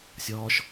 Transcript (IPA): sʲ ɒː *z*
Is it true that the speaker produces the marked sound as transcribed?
no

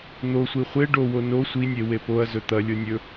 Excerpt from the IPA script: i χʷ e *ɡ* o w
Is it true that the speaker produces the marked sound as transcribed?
no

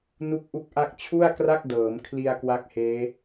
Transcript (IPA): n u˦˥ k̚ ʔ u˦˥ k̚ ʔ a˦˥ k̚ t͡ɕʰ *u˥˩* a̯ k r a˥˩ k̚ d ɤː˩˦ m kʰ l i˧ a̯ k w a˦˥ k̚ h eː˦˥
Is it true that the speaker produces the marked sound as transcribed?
yes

